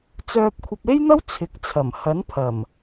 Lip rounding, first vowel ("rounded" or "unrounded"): rounded